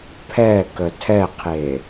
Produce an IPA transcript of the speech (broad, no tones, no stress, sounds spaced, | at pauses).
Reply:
pʰ ɛ k ə tʰ ɛ qʰ e